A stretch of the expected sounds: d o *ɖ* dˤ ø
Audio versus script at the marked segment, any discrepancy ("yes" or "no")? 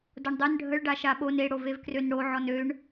yes